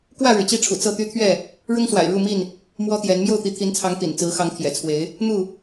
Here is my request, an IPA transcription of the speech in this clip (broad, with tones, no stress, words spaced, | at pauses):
kwä˥˨ɻɻ̩˩t͡ɕi˥˨ʈ͡ʂʰṵ˨˩ t͡sɤ˥˨t̪y˦t̪ʰɥɛ˥˨ | ɻʊ˦ŋswa̰˨˩ɪ̯ɻu˥˨mi˥˨n | mwɔ˦t̪jɛ˨˦n mjo˥˨ʊ̯t̪i˨˦t̪ʰi˨˦nt͡sʰɑ˨˦ŋ t̪ḭ˨˩n t͡sɹ̩˨˦xɑ˨˦ŋ t̪ʰjɛ̰˨˩t͡sʰwe˨˦ɪ̯ | n̪u˥˨